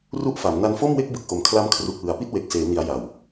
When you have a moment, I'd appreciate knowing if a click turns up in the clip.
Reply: no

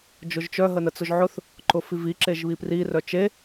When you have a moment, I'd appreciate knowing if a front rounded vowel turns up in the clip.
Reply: yes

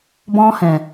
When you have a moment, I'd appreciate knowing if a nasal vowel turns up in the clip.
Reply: yes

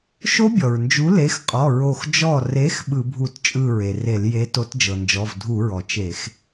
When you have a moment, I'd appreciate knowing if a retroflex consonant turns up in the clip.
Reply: no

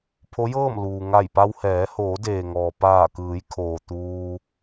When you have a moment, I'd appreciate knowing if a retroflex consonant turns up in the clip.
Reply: no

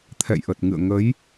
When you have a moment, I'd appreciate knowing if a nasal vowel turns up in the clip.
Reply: no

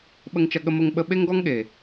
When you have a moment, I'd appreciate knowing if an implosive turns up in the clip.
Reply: yes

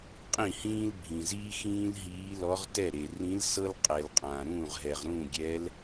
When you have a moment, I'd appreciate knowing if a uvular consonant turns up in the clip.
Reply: yes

